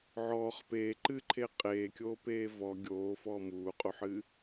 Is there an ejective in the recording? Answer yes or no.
yes